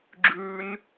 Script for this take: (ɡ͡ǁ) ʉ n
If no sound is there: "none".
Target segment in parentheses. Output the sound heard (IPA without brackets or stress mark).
ɡ͡ǁ